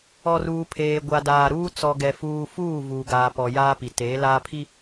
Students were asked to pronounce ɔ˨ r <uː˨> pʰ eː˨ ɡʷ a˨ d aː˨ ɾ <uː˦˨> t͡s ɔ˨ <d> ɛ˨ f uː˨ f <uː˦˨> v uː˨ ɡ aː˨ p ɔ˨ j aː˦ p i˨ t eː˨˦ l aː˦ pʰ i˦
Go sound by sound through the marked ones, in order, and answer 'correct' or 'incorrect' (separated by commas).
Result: correct, incorrect, incorrect, correct